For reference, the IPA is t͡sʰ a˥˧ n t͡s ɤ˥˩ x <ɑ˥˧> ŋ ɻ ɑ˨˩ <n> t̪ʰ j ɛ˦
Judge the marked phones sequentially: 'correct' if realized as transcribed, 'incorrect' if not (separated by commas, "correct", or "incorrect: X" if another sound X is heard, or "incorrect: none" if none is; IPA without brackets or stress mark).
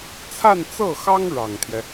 incorrect: ɑ˥, incorrect: ŋ